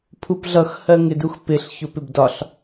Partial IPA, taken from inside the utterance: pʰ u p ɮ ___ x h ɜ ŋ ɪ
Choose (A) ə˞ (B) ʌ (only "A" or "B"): B